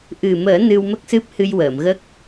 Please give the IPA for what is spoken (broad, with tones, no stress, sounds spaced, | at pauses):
ʔ ɨ˨˩ m əː˨˩˦ n ɨ˧ w m ə˦˥ k̚ s ɨ˦˥ p̚ h ɨ˧ j w əː˨˩˨ m ɣ ə˦˥ k̚